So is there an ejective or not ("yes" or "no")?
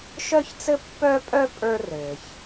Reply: yes